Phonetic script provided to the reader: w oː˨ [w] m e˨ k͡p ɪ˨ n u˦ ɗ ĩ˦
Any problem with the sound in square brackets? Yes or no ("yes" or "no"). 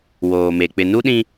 yes